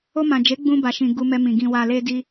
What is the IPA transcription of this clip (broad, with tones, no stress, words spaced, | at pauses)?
o˧mã˨d͡ʒe˨˦ ɡ͡bũ˧ ba˨ʃĩ˨ ɡu˧mɛ˧mĩ˨ ɡĩ˨wa˨le˧ di˧